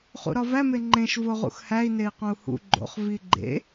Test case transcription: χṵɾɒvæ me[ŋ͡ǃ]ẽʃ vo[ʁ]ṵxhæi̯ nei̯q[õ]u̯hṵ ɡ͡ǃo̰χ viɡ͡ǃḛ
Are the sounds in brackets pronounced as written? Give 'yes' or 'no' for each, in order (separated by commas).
yes, yes, yes